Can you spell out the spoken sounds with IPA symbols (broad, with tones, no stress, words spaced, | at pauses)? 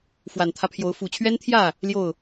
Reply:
fwa˨˩nt̪ʰä˦pʰjo˨˦ʊ̯ fu˨˩t͡ɕʰɥɛ˦nt̪ʰjä˥˨ | ljo˥˨ʊ̯